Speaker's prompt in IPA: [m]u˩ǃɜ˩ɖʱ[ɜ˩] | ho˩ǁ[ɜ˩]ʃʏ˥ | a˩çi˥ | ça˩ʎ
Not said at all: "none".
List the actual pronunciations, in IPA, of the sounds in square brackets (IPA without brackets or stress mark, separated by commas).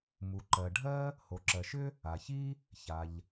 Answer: m, ɜ˥, ɜ˩